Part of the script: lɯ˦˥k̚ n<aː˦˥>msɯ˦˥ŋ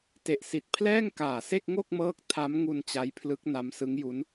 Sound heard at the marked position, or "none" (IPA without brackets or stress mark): a˦˥